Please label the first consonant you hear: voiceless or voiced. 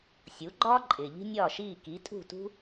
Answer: voiceless